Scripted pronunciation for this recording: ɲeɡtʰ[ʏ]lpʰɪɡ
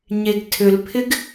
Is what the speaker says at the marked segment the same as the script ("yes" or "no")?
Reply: yes